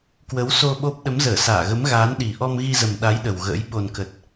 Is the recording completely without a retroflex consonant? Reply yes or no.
yes